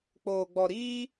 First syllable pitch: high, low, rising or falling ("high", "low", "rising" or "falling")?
low